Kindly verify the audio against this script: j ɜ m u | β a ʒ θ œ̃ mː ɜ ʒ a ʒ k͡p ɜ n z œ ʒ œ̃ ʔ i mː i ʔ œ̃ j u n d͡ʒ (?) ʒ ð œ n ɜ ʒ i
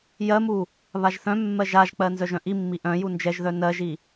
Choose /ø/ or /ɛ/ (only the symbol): ɛ